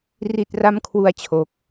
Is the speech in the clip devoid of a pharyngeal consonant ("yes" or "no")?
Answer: yes